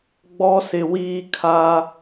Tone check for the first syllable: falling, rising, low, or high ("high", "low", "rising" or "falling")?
high